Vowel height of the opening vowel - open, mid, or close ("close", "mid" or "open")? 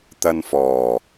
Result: open